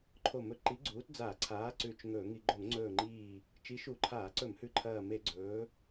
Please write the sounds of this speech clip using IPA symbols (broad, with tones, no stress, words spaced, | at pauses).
ǃʰo˧˩mɵ˧˩˧ ǃi˨˥ɡ͡ǀuː˨˥t d͡za˧˩˧ǀʰaː˨˥ ǀʉ˧˩t͡ʃŋɵː˧˩˧ŋi˧˩˧ ɡ͡ǃo˧˩˧ŋŋ͡ǀɵː˧˩ŋ͡ǃiː˧˩ | t͡ʃi˨˥ʃu˧˩˧ǃʰaː˧˩˧ǀɵ˧˩˧m hʉ˧˩ǃʰɐː˧˩me˧˩˧ ɡ͡ǀɵː˨˥